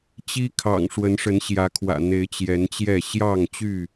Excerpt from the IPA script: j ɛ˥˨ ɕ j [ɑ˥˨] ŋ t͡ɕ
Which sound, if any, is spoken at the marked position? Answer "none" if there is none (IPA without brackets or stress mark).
ɑ˥˨